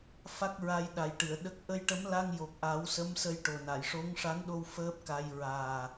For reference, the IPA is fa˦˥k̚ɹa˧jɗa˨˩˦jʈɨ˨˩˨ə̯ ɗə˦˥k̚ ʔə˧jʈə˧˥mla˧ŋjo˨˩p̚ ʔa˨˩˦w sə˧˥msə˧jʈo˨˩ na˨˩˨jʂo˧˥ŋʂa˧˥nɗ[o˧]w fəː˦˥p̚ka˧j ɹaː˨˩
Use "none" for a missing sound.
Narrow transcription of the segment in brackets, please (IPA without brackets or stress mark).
o˧